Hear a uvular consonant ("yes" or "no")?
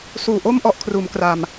no